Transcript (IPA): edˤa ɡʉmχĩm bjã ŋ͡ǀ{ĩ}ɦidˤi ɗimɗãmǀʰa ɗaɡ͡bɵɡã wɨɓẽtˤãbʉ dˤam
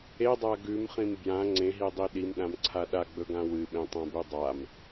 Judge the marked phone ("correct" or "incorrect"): incorrect